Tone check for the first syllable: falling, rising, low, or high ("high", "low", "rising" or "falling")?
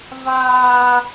high